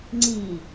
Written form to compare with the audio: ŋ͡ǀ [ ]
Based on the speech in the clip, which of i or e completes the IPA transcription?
i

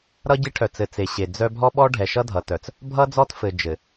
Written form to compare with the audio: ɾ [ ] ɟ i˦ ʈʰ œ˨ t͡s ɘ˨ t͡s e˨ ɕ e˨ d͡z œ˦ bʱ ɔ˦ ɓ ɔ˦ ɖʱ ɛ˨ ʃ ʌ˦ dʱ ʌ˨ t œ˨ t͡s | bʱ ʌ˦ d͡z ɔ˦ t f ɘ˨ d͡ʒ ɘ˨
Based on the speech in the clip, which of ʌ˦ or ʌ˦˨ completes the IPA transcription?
ʌ˦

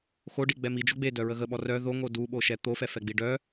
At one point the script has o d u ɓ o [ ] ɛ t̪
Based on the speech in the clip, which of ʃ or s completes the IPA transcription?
ʃ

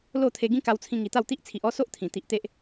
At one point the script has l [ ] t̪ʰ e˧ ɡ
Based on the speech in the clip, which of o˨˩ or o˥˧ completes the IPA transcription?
o˥˧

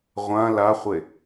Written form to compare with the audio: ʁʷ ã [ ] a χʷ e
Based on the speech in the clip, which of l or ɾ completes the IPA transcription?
l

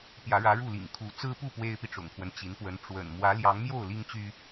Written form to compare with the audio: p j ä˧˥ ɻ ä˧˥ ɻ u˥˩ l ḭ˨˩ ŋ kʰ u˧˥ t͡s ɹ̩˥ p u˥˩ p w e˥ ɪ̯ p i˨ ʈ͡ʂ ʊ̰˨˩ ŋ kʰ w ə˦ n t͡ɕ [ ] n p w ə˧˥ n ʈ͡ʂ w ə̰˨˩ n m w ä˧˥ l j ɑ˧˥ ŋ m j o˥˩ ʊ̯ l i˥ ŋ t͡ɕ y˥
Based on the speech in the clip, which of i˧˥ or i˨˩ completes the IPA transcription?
i˧˥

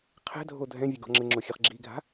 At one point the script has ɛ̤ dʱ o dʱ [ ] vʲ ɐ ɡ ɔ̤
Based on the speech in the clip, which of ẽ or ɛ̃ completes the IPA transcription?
ɛ̃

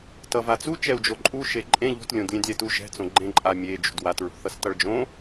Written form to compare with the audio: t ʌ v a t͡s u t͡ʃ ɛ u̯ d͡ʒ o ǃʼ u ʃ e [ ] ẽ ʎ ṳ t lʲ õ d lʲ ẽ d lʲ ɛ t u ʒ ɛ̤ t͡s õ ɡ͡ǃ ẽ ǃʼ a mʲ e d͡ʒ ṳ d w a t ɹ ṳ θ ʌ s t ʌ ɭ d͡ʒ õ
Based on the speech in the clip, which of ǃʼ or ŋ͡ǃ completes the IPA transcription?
ǃʼ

